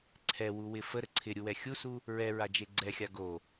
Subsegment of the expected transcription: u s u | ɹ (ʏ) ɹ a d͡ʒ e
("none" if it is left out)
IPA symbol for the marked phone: ɛ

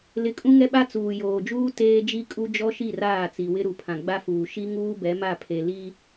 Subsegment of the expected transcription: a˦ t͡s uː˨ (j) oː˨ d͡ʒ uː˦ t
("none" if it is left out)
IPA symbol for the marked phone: j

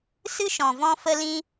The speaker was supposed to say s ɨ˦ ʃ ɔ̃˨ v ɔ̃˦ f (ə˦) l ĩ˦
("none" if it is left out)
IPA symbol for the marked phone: ə˦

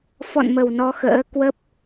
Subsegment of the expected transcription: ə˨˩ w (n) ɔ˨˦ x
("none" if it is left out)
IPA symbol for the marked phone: n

